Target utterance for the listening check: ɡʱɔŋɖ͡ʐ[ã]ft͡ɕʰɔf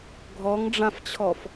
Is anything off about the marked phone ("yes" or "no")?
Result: no